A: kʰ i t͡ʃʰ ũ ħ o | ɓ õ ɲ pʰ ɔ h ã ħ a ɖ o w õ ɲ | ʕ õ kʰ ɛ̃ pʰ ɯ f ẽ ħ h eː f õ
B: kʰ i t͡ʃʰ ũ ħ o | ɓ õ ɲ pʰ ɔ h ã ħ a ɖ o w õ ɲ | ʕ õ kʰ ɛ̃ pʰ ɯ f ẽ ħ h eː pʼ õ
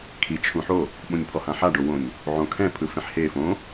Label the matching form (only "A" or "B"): A